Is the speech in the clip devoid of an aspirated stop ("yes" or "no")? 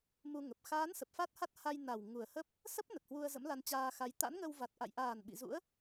yes